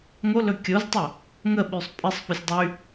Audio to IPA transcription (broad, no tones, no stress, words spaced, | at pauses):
ŋolɵ kʲoztˤo | ŋəɓysˤ pʼɪsˤfosʲ dˤy